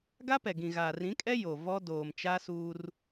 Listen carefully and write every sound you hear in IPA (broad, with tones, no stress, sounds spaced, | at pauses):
ɡ a˦ p ɛ˨ ɡ ĩ˨ ɣ aː˨ r ĩ˨˦ kʼ ɛ˦ j o˨ v ɔ˦ d oː˨ m t͡ʃ a˦ s uː˦ r